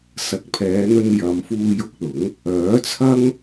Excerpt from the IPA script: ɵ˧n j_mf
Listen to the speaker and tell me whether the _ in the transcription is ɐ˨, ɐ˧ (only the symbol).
ɐ˨